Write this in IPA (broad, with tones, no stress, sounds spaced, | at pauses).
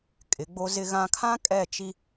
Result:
kʼ ɪ˨˦ ɡ͡b o˦ z ɪ˦ ɣ ã˦ kʰ ã˦ kʼ ɛ˦˨ t͡ʃ i˦